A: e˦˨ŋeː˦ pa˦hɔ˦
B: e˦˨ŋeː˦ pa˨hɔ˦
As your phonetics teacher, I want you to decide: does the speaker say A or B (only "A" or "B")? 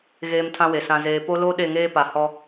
B